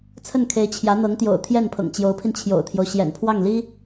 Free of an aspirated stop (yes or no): no